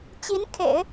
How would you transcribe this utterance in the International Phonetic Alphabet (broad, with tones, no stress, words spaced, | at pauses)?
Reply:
t͡ɕi˧˥n kʰḛ˨˩˦ɪ̯